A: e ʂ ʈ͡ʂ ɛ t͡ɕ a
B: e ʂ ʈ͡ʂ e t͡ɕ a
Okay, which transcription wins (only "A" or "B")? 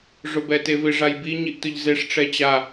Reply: A